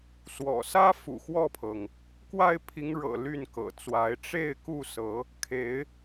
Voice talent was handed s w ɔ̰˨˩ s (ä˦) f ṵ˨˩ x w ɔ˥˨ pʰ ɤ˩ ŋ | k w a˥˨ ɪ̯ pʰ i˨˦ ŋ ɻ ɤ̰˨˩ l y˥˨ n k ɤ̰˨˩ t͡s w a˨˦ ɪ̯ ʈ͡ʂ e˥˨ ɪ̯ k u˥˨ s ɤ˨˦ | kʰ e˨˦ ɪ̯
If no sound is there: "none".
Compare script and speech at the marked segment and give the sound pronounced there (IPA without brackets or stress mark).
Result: ä˦